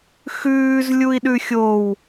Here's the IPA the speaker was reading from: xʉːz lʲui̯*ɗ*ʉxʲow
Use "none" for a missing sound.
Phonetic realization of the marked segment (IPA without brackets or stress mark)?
ɗ